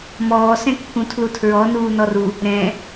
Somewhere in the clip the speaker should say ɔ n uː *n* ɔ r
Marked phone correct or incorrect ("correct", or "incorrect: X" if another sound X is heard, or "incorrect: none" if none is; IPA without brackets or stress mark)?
correct